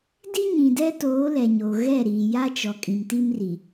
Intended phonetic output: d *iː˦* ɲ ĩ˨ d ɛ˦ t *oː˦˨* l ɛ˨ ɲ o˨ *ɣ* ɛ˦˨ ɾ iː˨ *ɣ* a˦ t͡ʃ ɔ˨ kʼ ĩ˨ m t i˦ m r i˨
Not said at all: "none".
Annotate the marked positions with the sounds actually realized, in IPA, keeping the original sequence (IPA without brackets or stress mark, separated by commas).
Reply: i˦, oː˨˦, ɣ, j